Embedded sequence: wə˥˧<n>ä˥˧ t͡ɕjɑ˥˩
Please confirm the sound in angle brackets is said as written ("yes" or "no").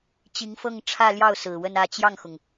yes